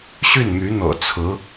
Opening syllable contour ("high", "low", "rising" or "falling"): falling